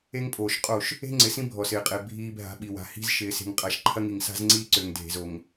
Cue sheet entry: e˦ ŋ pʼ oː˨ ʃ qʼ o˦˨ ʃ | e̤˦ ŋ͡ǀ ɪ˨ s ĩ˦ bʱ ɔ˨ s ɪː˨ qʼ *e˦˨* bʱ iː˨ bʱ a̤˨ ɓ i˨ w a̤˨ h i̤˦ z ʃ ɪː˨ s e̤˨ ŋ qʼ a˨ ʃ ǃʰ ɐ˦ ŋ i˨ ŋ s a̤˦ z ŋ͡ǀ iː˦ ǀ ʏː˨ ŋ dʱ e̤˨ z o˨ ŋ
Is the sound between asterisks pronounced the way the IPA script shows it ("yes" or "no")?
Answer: no